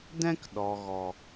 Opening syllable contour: high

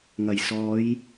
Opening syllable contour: low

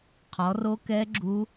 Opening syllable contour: rising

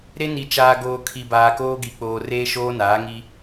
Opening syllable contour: high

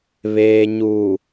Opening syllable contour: low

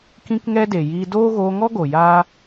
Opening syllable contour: high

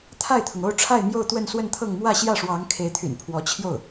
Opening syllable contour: falling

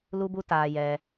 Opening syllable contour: high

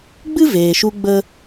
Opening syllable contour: high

